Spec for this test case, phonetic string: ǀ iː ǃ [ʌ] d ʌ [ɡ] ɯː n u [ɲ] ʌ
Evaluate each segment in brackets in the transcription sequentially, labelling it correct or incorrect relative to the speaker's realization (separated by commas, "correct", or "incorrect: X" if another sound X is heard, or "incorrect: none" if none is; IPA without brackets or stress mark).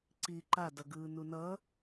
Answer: incorrect: a, correct, incorrect: n